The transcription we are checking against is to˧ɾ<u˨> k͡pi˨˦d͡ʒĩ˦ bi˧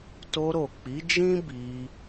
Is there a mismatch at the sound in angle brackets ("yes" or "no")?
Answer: yes